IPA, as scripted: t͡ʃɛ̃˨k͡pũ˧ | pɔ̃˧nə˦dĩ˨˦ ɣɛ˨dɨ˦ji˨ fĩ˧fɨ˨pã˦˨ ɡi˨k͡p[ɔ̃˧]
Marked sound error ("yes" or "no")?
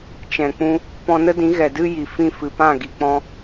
no